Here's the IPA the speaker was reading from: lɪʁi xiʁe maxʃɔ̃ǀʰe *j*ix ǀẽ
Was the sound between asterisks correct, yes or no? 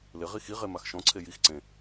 yes